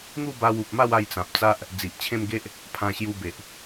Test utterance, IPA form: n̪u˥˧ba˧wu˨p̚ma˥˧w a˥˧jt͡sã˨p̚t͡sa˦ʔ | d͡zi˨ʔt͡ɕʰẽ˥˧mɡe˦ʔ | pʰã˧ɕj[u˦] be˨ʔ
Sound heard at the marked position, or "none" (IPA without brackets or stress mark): u˧